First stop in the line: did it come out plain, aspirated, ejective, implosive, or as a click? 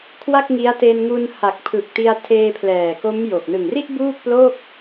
aspirated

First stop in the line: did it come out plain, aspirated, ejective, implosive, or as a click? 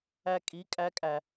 ejective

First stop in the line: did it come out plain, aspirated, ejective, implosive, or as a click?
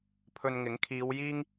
aspirated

